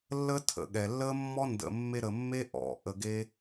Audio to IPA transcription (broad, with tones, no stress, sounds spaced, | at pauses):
lː ə˦ tʰ ə̰˨ ɠ ɛ˨ lː ə˦ mː ɔ˦ n d ə̰˨ mː e˧ ɾ ə˧ mː e˦ ʔ ɔ̰˨ ʔ ə˧ ɡ e˦